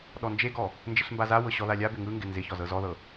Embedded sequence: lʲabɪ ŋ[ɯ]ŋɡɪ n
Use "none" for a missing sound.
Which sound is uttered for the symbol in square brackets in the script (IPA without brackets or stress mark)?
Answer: ɯ